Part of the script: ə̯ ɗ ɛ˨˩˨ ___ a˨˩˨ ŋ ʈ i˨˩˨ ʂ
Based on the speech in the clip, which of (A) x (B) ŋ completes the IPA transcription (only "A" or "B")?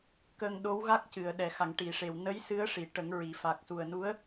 A